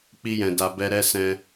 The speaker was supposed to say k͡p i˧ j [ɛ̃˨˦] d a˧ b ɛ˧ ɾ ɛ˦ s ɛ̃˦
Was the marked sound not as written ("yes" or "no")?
yes